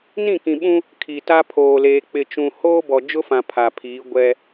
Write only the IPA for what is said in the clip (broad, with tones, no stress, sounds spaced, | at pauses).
n ĩ˦˨ k ĩ˨ ɓ ũ˦ | kʰ i˨ t a˦ pʰ oː˨ l eː˨ k͡p ɪ˨ t͡ʃ ũ˨ h oː˦ b ɔ˨ d͡ʒ ʊ˦ f ã˨ pʰ a˨ pʰ iː˨˦ ɡʷ ɛ˦